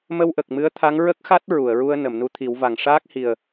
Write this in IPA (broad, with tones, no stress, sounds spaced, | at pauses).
m ə˧ w ʔ ə˨˩ k̚ m ɨ˧˥ ə̯ t̪ʰ a˧˥ ŋ ɹ ə˦˥ k̚ x a˦˥ t̚ ɹ u˨˩˨ ə̯ ɹ u˧ ə̯ n ə˨˩˨ m n u˧ t̪ʰ i˨˩˦ w v a˨˩ ŋ ʂ aː˦˥ k̚ h i˨˩ ə̯